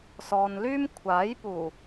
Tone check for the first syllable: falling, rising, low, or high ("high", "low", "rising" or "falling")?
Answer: low